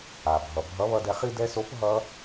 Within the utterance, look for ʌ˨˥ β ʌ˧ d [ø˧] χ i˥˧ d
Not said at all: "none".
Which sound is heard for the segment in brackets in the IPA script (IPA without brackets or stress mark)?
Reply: ɛ˧